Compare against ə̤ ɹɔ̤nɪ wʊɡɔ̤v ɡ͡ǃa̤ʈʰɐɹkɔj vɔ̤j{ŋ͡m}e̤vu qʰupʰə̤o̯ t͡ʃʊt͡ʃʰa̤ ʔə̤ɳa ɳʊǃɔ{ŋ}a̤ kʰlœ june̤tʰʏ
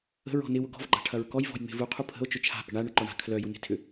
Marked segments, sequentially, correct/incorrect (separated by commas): correct, incorrect